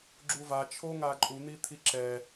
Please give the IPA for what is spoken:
ɡ͡ǁuva t͡ʃʰoŋaǃʼu n̪it̪ʰiǁɛ

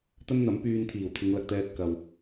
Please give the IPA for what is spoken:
t̪ɐ˥nn̪ɐ˨˥mpyː˧n t̪ʰiː˨˩wt̪ʰɪ˨˧ŋ lɐ˨k̚t̪ɛː˧t̚ kɐ˨w

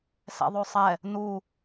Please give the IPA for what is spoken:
sɛ̰ðˤosˤɛ | nu

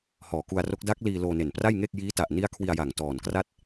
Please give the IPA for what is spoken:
hɔː˨˩ku˧a̯ro˦˥k̚ da˦˥k̚ liː˧ loː˧ne˨˩npra˥˩jŋeː˥˩k̚ jiː˦˥ta˨˩ʔ ni˦˥a̯ kʰwi˧a̯ja˨˩ŋ tɔː˨˩nkra˥˩t̚

